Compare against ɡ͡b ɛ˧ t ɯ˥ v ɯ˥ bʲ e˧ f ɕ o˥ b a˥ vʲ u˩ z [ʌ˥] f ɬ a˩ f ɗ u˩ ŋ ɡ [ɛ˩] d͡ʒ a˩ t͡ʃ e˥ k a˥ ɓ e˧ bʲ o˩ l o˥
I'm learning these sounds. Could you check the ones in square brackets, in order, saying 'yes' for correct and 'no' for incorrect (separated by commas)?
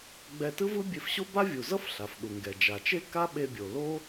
yes, yes